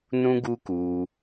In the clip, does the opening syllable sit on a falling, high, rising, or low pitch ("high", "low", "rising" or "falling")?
high